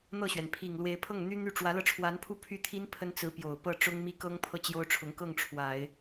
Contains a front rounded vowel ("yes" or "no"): yes